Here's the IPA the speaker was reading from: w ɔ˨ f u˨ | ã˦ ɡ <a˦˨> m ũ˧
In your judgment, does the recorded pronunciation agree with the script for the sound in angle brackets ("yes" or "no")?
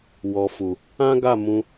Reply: yes